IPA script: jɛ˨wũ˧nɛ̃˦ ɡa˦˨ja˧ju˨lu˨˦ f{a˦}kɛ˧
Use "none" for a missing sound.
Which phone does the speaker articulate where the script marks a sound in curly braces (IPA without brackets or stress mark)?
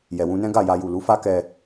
a˦